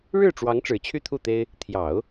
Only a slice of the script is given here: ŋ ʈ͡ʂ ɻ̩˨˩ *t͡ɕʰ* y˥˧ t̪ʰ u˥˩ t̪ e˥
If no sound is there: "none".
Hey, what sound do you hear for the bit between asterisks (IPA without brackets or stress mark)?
t͡ɕʰ